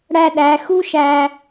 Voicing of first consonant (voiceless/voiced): voiced